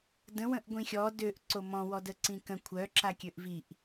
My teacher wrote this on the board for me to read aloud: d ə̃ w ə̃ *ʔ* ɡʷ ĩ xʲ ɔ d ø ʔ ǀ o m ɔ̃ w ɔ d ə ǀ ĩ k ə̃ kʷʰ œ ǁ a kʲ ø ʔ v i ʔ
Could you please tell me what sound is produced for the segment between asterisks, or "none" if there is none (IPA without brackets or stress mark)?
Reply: ʔ